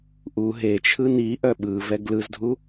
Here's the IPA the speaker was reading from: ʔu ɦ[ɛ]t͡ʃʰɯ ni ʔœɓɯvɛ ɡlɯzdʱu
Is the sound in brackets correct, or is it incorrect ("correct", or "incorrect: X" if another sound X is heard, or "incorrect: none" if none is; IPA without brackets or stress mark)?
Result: incorrect: e